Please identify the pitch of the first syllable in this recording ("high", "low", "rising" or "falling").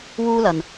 high